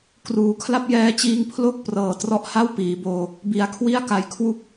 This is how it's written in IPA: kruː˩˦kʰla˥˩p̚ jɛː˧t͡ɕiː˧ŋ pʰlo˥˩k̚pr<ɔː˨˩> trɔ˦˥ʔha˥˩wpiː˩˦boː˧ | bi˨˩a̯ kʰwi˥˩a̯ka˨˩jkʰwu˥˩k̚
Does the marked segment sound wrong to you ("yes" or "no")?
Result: yes